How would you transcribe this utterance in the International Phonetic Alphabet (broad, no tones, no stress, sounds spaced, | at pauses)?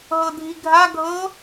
ɦ ɤ dʱ i ɡʱ a ɡʱ ɤ